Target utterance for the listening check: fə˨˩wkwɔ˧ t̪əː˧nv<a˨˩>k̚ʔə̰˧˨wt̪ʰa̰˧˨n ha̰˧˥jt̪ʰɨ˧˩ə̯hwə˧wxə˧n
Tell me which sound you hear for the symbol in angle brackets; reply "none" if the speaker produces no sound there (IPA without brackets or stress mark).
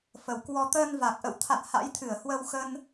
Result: a˨˩